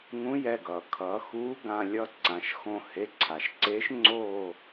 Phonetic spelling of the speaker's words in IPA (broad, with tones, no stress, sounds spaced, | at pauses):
ŋ ũ˨˥ j ɛ˩˧˩ ɡ ʌː˩ kʰ ʌː˩˧ x uː˨˥ ɡ ã˩˧˩ lʲ ʌ˦˨ ǀ ã˩˧ ʃ x õ˦˨ h e˩˧˩ ǀʰ a˩ ʃ ǀ eː˨˥ ʃ ŋ͡ǀ oː˦˨